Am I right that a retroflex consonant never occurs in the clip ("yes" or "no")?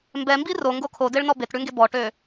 no